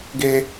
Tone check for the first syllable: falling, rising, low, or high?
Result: high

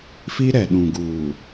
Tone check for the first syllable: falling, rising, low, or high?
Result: high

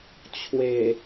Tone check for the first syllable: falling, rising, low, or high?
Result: low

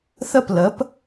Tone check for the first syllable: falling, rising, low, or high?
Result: falling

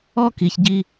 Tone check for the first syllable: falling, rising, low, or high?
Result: high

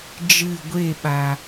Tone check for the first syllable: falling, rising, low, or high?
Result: falling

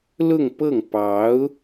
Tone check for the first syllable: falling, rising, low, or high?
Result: falling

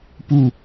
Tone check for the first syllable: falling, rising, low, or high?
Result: falling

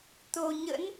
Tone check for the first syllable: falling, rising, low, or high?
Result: low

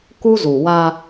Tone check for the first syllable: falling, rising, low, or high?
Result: high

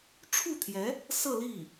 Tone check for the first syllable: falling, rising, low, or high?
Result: falling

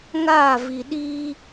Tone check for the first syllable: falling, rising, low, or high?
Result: falling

